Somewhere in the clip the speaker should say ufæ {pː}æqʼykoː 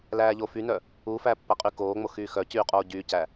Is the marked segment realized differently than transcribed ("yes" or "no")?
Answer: no